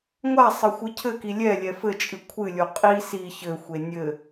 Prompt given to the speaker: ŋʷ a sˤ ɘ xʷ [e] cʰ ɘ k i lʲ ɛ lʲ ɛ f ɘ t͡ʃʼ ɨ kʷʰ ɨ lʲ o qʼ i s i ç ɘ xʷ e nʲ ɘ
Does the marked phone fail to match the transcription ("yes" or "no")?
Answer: yes